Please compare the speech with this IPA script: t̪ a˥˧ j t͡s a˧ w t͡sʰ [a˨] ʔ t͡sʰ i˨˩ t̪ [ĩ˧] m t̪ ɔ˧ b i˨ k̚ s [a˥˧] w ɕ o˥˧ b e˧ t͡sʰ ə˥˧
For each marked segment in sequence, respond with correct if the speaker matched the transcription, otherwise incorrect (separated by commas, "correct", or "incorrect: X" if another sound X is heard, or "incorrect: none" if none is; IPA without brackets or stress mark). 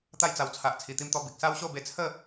correct, incorrect: i˧, incorrect: a˦